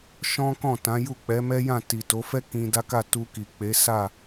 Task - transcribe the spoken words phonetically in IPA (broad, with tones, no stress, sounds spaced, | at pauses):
ʃ ɔ̃˦ k ɔ̃˦˨ t ã˨˦ j u˦˨ k͡p ɛ˨˦ m ɛ˦ j ã˦˨ t i˨ t o˨˦ f ɛ˦ k ĩ˧ d a˦ k a˦˨ t u˧ k i˨ k͡p e˨˦ s a˦˨